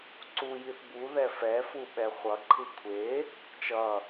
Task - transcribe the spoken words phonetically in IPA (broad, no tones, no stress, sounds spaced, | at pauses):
ǀ u j i θ b u ð ɛ f ɛ f u ɓ ɛ χʷ ʌ ǃʰ ɯ kʷʰ e | t͡ʃ ʌ